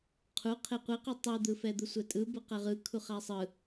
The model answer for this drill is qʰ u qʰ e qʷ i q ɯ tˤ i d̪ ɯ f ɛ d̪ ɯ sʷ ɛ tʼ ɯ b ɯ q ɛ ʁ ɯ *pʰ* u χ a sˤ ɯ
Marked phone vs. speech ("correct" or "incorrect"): incorrect